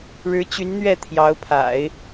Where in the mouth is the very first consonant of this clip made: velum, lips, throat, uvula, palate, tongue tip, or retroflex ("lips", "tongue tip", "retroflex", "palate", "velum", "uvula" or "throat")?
retroflex